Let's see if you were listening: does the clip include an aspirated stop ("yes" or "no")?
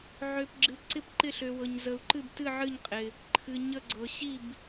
yes